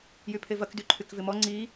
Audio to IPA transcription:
j y pʰ e v ɐ k d y ǃʰ y k v ɪ m ɔ ŋ͡ǀ i

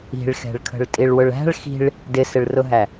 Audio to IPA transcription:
i̤ ɭ x ɛ̤ ɭ kʰ ə̤ ɭ tʼ i ɭ w ʊ ɭ æ̤ ɭ x i̤ ɭ | d ɪ s ɪ ɭ r ʊ ɦ æ

